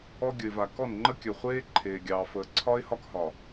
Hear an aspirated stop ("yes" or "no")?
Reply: yes